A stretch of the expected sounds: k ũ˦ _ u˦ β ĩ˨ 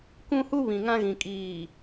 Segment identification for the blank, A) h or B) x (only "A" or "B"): A